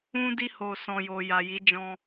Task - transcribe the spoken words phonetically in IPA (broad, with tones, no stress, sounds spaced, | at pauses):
ũ˧ d i˧ h o˨ s ɔ̃˨ j o˨ j a˨ j i˨˦ d͡ʒ ɔ̃˧